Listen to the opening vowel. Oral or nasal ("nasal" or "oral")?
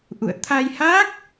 oral